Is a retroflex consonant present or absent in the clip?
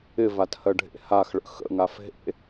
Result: present